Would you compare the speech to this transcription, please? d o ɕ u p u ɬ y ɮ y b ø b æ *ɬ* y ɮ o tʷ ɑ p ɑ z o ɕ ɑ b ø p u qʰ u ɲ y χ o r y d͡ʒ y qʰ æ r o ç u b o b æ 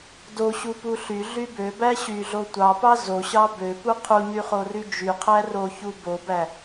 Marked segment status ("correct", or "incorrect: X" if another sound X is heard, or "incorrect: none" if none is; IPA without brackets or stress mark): incorrect: ɕ